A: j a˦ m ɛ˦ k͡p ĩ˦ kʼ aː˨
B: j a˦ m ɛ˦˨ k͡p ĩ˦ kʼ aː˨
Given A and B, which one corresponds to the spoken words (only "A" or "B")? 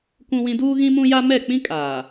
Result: B